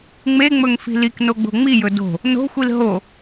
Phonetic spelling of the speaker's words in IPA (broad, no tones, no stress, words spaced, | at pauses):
ŋ͡meŋ͡mɵŋfi̤ liknoɡ͡bo̤ ŋ͡mijɵ do̤ | no̤xʷil ɦo